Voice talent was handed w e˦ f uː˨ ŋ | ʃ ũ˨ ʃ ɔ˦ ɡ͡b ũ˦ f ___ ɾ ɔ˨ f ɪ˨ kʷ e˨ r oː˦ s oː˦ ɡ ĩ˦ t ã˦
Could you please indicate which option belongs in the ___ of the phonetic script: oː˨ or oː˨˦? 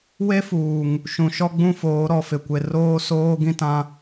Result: oː˨˦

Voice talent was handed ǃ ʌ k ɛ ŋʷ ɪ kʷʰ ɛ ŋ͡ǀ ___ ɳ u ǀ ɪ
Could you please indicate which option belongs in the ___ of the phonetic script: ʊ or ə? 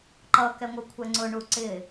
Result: ʊ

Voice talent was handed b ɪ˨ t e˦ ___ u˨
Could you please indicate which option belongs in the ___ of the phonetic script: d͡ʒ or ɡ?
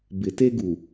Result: ɡ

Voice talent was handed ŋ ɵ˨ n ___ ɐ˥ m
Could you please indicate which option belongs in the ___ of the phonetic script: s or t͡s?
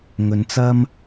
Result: t͡s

